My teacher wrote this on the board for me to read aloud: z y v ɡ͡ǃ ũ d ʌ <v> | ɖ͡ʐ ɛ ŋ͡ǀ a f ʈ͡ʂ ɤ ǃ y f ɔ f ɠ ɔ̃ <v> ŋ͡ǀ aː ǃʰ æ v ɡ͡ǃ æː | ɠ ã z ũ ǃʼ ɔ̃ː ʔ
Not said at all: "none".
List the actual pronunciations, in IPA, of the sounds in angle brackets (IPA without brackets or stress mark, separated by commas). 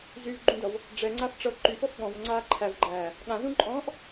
v, v